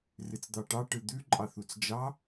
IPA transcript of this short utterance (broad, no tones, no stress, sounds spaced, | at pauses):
r ɨ t͡s d̪ ɑ ʈ ɑ ʈ ɯ d̪ ʉ ǃʼ ɑ θ u t͡s d͡ʒ ɑ